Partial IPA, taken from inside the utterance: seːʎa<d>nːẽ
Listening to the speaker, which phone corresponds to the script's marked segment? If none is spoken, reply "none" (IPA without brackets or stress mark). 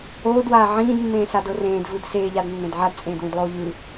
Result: d